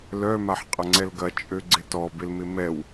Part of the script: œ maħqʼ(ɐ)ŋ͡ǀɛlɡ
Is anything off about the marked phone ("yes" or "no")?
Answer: no